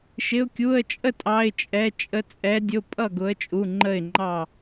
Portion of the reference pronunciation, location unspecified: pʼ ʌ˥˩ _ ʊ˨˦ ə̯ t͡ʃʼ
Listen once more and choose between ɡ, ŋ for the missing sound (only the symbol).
ɡ